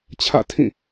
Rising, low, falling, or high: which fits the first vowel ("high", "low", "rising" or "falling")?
falling